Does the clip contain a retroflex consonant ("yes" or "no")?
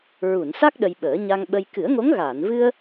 no